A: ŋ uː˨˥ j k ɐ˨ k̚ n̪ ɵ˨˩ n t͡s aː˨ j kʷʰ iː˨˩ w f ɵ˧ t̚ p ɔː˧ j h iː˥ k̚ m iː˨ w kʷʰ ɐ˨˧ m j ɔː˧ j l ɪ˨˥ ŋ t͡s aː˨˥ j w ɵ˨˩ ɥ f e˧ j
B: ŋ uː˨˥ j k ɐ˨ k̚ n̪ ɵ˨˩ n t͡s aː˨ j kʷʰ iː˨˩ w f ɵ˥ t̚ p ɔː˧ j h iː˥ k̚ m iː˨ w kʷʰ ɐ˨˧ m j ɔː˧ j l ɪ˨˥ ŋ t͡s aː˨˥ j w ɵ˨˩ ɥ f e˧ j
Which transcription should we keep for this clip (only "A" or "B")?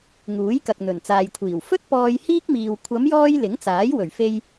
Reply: B